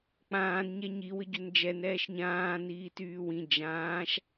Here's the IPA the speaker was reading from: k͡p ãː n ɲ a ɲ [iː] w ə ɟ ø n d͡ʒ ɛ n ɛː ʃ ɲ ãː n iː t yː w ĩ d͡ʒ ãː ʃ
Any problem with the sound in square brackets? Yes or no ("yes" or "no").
yes